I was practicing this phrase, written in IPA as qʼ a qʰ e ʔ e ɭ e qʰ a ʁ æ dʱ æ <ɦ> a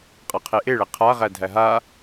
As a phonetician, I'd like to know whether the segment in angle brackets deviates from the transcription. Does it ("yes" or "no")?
no